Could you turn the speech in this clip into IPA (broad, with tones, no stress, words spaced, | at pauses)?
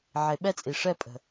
ʕe˨ɓɛ˦t͡sʼi˨ ʂɛ˦ pʼə̤˨